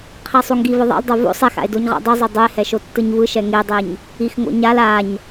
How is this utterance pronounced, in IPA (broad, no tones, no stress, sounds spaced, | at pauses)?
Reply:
qʰ ɛ sˤ u ŋ ɡ i v ɯ ðˤ a̰ l dˤ o v o̰ sˤ ɛ x a̰ e̯ d o ɲ ʁ a̰ dˤ ɯ zˤ o dˤ u e̯ h ɛ ʃ o tː ɯ ɲ v ɯ ʃ ɛ ŋ e dˤ e ɲ | i x ŋ o̰ ɲ a l a ɲ